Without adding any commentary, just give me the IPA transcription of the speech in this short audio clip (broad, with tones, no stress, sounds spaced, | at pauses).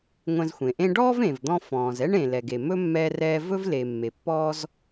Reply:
ŋʷ ɛ̃˧ z xʷ ẽ˩ ʔ ẽ˥ ɖ ɔː˥ v ẽ˩ v d̪ ɔ̃˧ f ɔ̃ː˩ z ɛ˥ ɳ ẽ˩ l ɛ˩ ɡ e˩ m ɵ˥ mː ɛː˧ r ɛː˧ v ɵ˥ v l e˩ mː e˩ pː ɔː˥ z